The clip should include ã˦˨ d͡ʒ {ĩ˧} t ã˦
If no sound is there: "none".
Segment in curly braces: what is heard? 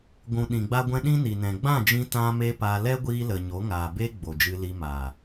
ĩ˧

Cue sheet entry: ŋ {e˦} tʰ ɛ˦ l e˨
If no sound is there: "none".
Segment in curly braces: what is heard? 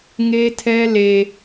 e˦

